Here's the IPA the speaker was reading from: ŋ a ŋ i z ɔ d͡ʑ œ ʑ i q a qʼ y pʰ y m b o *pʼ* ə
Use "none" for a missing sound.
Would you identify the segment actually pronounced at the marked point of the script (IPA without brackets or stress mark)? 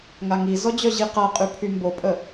pʼ